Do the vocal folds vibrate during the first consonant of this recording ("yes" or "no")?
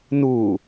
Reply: yes